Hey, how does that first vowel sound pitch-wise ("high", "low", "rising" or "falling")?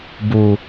low